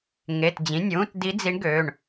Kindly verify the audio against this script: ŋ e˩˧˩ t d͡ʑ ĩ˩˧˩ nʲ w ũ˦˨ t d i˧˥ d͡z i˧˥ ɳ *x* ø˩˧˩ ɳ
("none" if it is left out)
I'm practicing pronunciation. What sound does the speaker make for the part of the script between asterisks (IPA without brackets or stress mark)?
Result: ɡ